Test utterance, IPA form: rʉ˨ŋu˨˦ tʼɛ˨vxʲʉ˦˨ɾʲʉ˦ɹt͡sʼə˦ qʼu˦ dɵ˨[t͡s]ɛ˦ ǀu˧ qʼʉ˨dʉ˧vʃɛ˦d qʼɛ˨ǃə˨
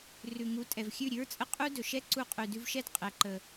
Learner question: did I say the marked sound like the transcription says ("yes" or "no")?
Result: no